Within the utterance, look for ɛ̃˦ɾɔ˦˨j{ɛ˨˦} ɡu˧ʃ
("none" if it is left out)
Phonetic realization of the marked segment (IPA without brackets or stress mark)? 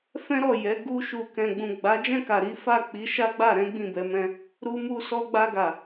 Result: ɛ˨˦